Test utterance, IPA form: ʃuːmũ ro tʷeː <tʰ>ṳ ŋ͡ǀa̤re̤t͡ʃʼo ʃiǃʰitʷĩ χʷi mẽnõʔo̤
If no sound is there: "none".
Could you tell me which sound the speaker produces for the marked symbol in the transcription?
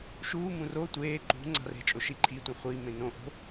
ǃ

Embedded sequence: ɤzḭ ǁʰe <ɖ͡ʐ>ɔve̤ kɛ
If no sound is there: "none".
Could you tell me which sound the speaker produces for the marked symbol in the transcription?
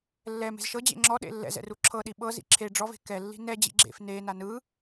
ɖ͡ʐ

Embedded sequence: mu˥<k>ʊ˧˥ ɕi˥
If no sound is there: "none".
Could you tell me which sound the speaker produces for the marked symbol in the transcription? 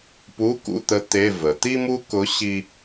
k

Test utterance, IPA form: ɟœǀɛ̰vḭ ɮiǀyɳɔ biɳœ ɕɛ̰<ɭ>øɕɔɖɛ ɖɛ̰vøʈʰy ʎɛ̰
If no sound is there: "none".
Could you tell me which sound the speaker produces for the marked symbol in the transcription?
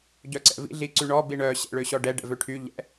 ɭ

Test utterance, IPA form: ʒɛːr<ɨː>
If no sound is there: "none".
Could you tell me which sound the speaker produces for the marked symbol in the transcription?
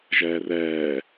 ɛː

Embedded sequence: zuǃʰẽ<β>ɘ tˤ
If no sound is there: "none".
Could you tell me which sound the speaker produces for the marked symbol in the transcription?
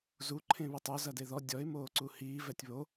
β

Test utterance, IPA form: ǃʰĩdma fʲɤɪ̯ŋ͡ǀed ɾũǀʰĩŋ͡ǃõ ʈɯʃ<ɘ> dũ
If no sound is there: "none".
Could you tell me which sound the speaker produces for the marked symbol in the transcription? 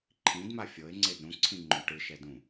ɛ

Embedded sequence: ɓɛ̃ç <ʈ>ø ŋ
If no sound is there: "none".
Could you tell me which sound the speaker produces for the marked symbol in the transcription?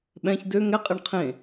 d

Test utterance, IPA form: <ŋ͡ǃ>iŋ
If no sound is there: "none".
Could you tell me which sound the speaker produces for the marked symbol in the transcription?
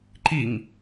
ǃ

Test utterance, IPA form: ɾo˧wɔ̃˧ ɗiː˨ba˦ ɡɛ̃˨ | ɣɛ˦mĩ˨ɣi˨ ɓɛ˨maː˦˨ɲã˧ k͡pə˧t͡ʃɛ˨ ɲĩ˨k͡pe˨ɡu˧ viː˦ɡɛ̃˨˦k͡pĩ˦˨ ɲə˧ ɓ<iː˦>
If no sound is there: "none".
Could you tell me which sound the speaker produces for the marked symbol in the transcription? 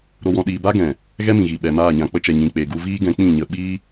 iː˦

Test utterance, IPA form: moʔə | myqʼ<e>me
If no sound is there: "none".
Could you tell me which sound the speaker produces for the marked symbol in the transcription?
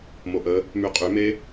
y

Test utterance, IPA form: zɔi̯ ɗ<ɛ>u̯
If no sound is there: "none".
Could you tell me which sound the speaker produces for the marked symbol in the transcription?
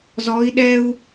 ɛ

